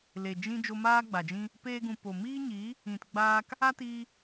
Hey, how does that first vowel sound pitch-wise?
low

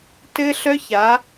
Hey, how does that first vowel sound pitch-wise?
high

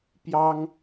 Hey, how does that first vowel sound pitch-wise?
high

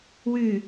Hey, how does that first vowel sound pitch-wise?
low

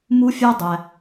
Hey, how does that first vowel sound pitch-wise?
high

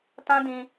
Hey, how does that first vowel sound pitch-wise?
high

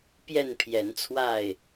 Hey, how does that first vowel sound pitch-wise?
falling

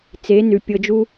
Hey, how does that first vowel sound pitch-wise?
rising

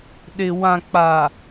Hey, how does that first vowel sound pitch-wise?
low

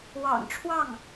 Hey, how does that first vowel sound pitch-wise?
low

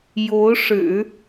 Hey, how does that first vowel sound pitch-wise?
rising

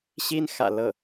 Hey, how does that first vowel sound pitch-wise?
high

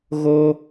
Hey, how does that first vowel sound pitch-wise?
high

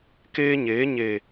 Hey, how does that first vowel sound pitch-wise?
high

